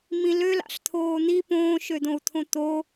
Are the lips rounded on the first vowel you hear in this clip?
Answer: no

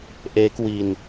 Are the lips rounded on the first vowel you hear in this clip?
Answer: no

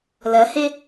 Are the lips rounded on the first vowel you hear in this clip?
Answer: no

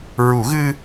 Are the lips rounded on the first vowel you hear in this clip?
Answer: yes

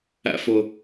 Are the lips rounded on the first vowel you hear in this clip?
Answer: no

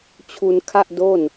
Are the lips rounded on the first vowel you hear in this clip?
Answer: yes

